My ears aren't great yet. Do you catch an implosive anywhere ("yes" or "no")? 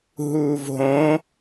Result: no